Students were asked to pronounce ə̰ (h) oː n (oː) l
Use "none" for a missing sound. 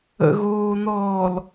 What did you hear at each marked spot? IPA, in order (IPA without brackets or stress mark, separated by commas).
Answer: ɣ, ɔː